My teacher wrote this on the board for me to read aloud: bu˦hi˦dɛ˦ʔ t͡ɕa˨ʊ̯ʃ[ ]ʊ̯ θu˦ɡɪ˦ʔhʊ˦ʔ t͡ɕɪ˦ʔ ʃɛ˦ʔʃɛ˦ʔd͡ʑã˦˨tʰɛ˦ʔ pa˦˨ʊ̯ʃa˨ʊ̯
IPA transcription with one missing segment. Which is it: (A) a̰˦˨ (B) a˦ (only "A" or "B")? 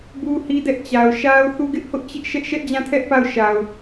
B